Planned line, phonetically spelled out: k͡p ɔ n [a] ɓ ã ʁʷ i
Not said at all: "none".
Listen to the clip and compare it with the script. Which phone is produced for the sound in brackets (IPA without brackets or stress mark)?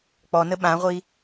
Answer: ə